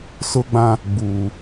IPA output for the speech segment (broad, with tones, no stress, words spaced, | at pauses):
sʊ˦ɡ͡bã˦ | ɡ͡buː˨